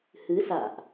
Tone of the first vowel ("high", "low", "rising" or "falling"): rising